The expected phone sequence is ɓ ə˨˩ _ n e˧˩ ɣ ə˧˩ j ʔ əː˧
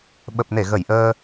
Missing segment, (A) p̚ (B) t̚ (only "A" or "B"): A